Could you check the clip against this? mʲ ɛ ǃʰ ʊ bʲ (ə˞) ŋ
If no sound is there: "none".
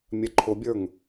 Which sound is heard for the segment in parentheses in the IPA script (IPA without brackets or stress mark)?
ə˞